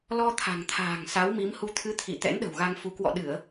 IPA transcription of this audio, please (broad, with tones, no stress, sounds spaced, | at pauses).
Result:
l ɔ˧ t̪ʰ a̤˨˩ ŋ t̪ʰ a̤ː˨˩ ŋ s a˨˦ w m i˨˦ m h u˧ t̪ʰ ɨ˨˦ t̪ʰ ḭ˧˨ t̪ ɛ̰˧˥ n ɗ ə̤˨˩ w ɣ a˧ ŋ f u˨˦ k w ɔ̰˧˨ ɗ ɨ˧˩˨ ə̯